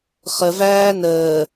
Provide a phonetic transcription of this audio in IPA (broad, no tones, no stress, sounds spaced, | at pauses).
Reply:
χ ə v æː n əː